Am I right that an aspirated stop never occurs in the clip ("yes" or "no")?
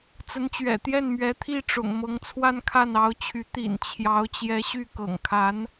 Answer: no